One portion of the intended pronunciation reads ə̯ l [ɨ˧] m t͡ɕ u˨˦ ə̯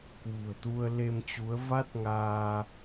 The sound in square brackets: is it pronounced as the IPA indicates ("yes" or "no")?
no